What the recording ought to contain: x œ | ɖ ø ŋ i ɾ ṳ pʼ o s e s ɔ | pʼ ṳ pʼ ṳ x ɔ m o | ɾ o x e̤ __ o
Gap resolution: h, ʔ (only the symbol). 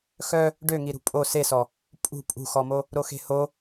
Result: h